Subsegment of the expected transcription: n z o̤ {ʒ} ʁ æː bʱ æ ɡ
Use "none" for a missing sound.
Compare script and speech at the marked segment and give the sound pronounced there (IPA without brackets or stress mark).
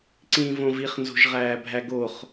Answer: ʒ